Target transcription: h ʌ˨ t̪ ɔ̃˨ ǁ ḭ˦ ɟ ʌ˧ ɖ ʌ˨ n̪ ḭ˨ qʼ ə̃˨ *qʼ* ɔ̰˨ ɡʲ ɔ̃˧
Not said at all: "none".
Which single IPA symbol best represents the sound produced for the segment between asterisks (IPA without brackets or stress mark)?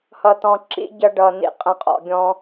qʼ